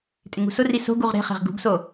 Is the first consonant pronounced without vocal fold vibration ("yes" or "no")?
yes